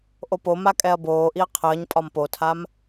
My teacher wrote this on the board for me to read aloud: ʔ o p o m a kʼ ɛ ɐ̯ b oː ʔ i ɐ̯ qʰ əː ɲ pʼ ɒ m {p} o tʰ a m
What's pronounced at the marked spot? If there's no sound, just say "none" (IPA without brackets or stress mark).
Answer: p